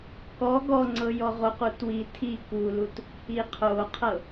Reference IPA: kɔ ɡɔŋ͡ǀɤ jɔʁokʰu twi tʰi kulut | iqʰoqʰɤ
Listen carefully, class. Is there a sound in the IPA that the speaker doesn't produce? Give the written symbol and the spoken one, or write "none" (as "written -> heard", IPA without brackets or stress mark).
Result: kʰ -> q